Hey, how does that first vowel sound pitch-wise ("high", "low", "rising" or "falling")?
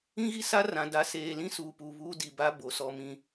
high